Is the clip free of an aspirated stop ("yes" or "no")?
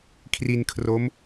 no